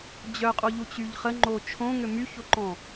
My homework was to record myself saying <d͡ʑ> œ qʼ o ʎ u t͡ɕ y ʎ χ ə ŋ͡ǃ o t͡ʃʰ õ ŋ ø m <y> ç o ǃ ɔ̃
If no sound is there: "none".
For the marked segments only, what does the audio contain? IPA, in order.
d͡ʑ, y

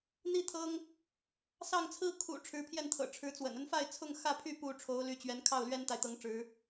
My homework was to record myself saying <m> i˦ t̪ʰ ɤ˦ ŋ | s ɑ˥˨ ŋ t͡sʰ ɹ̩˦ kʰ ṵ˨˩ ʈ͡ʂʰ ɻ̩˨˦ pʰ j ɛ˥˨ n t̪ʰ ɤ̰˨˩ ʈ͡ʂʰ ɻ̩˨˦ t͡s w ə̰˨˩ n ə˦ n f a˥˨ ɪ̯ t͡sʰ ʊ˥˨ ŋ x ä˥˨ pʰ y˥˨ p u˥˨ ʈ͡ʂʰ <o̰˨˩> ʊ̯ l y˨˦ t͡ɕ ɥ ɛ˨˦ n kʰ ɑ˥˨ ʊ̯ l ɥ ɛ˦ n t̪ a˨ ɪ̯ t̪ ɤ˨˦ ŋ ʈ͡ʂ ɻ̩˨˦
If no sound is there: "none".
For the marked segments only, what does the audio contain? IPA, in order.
n̪, o˨˦

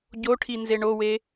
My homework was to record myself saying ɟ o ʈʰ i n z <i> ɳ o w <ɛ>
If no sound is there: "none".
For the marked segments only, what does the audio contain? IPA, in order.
e, e

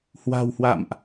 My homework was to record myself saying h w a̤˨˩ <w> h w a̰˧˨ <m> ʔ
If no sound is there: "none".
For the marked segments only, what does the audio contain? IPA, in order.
w, m

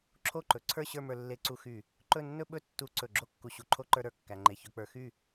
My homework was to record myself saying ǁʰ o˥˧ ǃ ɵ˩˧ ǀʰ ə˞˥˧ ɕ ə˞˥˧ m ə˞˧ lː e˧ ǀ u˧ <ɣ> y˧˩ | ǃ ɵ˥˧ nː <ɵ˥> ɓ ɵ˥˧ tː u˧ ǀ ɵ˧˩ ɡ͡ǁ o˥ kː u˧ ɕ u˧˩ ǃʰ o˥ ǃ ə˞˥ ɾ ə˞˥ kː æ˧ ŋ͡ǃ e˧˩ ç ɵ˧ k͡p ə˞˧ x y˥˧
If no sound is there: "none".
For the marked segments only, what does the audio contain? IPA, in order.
x, ɵ˥

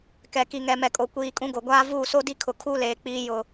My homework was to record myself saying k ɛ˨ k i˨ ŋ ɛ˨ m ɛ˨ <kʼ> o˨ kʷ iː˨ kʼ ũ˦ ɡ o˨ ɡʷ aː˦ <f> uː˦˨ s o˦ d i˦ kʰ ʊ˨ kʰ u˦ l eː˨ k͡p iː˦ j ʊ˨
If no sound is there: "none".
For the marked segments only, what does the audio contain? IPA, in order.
kʼ, v

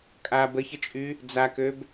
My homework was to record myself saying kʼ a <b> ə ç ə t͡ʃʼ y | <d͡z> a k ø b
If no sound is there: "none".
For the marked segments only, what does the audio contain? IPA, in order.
b, d͡z

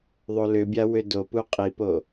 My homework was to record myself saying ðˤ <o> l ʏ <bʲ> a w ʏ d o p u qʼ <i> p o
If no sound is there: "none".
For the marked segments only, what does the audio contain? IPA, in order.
o, bʲ, i

